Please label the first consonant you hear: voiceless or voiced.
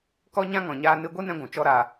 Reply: voiceless